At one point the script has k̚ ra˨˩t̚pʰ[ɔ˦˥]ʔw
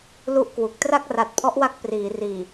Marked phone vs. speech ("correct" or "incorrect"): correct